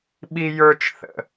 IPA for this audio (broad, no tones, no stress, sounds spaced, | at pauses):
ɓ i j ə˞ t͡ʃ θ ə̰